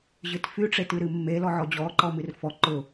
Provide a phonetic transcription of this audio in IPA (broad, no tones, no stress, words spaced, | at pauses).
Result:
ʑɨtfy ʈ͡ʂetɨɾɨmːe lɔʕɔd͡ʑɔ ǃɔmɨrfɔ ǃʊ